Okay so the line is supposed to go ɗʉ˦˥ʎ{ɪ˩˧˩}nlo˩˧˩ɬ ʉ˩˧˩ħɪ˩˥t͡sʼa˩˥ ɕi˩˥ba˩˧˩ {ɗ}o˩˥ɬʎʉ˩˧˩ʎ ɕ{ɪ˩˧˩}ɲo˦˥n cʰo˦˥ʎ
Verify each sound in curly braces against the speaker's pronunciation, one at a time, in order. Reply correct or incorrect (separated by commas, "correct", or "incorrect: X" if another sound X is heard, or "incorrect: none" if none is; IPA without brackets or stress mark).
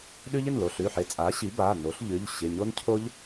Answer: correct, incorrect: n, correct